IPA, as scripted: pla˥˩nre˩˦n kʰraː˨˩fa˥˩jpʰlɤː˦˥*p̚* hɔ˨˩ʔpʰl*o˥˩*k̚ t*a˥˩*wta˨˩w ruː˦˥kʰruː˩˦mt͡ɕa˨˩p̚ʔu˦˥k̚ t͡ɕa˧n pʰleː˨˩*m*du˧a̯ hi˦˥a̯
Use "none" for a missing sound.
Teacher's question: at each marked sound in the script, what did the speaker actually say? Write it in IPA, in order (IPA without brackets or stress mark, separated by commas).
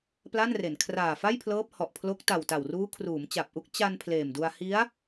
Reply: p̚, o˦˥, a˨˩, m